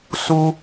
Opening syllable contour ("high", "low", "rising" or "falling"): high